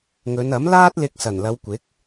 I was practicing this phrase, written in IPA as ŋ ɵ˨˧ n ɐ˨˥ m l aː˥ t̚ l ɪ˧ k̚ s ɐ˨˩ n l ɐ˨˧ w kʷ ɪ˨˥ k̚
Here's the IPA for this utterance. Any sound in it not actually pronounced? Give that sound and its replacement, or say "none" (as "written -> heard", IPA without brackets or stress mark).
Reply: none